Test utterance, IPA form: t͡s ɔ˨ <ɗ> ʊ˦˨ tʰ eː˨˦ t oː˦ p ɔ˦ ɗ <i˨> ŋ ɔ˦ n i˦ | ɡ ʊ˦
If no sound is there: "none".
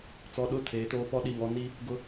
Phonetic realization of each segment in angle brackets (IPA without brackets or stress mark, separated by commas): ɗ, i˨